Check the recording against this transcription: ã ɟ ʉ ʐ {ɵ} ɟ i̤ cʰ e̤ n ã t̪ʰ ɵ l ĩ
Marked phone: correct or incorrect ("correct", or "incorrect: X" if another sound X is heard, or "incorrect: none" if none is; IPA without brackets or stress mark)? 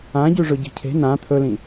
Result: correct